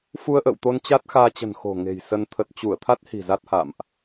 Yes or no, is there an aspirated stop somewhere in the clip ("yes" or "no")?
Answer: yes